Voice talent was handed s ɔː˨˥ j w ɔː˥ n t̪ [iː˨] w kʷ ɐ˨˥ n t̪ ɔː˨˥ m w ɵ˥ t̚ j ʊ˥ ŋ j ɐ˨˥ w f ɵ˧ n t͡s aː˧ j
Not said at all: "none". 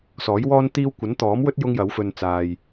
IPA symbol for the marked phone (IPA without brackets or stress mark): iː˥